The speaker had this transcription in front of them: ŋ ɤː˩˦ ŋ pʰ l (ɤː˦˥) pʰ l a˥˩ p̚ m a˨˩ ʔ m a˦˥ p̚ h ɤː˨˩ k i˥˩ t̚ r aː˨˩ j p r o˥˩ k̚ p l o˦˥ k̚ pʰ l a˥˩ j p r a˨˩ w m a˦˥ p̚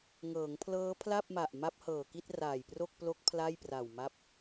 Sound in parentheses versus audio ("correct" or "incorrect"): correct